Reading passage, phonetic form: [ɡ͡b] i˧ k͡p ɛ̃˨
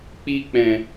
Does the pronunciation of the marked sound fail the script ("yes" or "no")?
yes